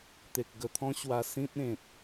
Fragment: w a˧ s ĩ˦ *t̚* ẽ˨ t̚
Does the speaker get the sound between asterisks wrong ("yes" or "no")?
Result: no